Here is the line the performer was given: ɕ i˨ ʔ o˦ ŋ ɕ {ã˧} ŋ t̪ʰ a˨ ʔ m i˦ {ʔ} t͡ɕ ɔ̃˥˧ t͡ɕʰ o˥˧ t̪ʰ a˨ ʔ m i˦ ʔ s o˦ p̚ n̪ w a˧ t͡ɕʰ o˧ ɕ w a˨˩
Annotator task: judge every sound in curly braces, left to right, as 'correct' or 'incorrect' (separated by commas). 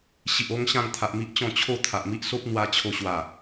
incorrect, correct